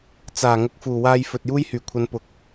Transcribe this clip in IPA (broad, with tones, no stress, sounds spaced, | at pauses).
t͡s aː˨˩ ŋ ʊ˨˥ k̚ f uː˨˩ w aː˧ j f ɵ˨ t̚ j uː˥ j h yː˨˩ kʷʰ ɐ˨˧ n p ʊ˨ k̚